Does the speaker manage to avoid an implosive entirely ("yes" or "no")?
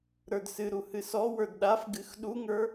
no